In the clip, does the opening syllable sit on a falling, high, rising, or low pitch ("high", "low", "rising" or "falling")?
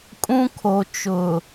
high